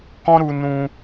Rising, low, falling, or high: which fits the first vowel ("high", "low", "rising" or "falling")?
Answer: high